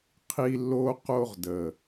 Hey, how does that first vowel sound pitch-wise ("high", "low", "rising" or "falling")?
high